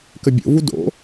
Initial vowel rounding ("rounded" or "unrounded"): unrounded